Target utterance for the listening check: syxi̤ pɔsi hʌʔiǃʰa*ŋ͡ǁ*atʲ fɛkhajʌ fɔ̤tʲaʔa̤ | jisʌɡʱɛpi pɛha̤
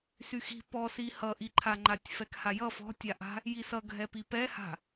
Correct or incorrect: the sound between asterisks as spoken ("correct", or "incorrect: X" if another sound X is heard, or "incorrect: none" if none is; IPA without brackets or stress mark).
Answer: incorrect: ŋ͡ǃ